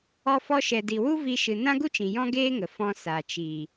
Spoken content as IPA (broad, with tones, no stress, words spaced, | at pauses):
ɔ˧fɔ˧ʃɛ˨ di˨wu˦vi˧ʃɨ˨ nã˦ɡu˦t͡ʃĩ˨ jɔ̃˦ɡeː˦ŋə˨ fɔ̃˧ sa˨t͡ʃiː˨